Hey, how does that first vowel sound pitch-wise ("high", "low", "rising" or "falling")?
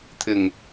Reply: low